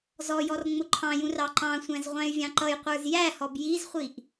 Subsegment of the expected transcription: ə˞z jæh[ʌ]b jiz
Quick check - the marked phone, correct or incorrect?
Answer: incorrect